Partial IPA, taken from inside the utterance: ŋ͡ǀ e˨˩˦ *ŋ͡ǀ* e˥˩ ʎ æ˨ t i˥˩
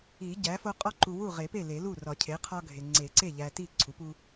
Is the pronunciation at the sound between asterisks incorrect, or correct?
incorrect